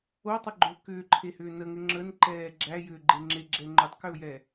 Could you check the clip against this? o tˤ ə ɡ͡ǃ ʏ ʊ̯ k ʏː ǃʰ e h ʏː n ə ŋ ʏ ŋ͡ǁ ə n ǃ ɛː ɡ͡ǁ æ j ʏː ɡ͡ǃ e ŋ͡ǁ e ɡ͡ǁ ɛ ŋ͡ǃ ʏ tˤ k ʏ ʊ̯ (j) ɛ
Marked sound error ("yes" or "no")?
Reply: no